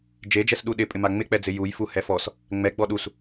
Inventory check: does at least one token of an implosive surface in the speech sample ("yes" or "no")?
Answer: yes